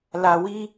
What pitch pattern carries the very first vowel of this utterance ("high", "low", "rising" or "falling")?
low